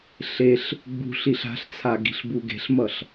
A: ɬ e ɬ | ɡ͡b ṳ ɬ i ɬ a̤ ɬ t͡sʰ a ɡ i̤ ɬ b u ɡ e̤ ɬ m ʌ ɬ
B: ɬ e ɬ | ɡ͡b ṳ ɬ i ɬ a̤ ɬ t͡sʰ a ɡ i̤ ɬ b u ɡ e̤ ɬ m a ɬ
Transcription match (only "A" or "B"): A